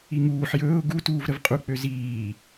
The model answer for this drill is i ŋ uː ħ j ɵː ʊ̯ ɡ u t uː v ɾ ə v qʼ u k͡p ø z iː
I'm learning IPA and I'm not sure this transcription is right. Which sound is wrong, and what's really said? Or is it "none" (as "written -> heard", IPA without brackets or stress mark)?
none